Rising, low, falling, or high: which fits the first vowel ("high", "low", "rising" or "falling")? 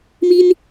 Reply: high